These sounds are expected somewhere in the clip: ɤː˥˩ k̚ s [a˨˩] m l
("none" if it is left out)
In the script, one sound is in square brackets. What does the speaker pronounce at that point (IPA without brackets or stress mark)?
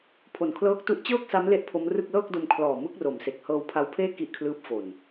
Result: a˦˥